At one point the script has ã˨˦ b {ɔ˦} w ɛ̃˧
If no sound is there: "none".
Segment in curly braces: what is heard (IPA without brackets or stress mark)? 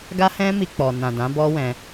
ɔ˦